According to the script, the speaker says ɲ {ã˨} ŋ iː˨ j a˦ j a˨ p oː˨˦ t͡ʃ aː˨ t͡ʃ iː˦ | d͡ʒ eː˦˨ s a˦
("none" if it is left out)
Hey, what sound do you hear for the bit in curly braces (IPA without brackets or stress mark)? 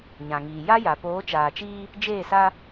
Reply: ã˨